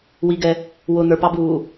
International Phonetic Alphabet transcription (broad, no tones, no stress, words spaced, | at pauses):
wiɡɛ | wʊ n̪ə˞pɑbuː